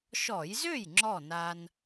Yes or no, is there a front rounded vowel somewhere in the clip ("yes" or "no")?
yes